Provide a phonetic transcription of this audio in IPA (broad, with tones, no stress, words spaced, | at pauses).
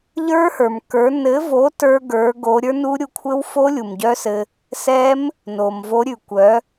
ʎə˞˦˥hə˞˩m kə˞˩˥ nɘ˩˥vo˩˥ tə˞˦˥ɡə˞˩˥ɡo˩˥ ɾʲə˞˦˥nu˦˥ ɾʲu˧kʷʰɘ˦˥wfo˦˥ lʲu˩mɟœ˦˥sɘ˧ | sɛ˦˥m | no˩mvo˩˥ɾʲʉ˩kʷœ˩˥